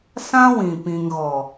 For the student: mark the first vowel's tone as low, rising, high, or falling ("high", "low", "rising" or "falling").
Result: high